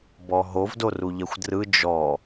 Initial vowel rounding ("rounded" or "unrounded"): rounded